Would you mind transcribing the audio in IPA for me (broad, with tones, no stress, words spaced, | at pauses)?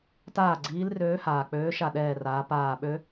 taː˥˩ ɡ͡ǀiː˨˥lrøː˨˥haː˩ k͡pøː˨˥ʃa˧˩ɗɛː˧˩raː˩˧ paː˧˩ɓø˦˥